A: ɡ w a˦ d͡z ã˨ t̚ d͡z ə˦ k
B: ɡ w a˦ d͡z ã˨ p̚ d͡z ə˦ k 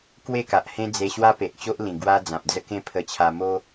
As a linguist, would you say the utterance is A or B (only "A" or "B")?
B